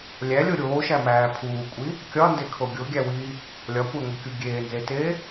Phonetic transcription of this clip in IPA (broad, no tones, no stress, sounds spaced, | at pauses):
lʲ æ lʲ o ɾʲ oː ʃ æ m æː pʰ uː kʷʼ i | kʲ ɒ n d e kʰ o ɡʲ o ɡʲ æ w iː | lʲ ɒ kʷ æ ŋʷ i kʲ u ɡʲ eː n z e t eː